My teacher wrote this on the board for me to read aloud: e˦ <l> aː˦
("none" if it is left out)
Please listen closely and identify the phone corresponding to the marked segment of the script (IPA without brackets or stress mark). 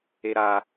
ɾ